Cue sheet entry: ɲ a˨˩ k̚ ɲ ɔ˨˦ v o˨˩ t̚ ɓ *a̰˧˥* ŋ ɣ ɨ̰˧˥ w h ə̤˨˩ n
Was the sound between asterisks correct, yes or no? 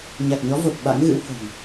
yes